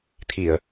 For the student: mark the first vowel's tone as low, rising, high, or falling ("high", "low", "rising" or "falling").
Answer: low